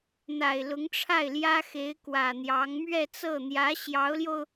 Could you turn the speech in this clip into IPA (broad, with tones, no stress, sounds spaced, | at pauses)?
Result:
n̪ a˨˩ ɪ̯ l ʊ˧˥ ŋ ʈ͡ʂʰ a˥˩ ɪ̯ l j ä˥ x e˧˥ ɪ̯ k w ä˨˩ n̪ j ɑ˧˥ ŋ m ɥ ɛ˥˧ t͡s ɤ˥˩ n̪ j ä˧˥ ɕ j ɑ˧˥ ʊ̯ l j o˧ ʊ̯